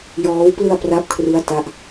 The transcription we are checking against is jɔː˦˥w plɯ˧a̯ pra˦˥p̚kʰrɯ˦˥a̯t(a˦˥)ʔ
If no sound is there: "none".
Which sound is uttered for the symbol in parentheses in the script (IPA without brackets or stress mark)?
a˦˥